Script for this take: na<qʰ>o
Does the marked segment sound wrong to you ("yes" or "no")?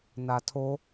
yes